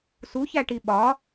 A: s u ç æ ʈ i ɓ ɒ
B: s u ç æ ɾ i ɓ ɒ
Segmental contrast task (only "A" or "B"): A